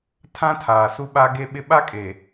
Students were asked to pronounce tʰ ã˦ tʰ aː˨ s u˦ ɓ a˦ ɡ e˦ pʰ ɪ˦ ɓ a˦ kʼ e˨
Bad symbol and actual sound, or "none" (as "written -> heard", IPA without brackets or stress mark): pʰ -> ɓ